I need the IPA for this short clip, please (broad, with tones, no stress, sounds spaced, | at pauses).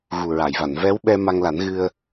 ɣ u˨˩ ɹ a˨˩˨ j v a˨˩˨ n v ɛ˧˥ w ɓ ɛ˧ m a˧ ŋ l a˨˩˦ n ɣ ɨ˧ ə̯